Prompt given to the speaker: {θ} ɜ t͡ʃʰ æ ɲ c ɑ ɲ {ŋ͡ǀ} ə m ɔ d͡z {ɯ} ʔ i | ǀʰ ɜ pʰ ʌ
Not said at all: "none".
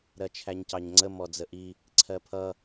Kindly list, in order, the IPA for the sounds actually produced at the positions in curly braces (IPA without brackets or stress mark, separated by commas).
ɾ, ŋ͡ǀ, ə